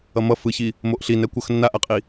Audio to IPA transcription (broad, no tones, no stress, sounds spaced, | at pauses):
ʌ m ʌ f ɯ ç i | m o ʔ ɬ i n ɛ kʷ ʌ x nː a ʔ a qʼ i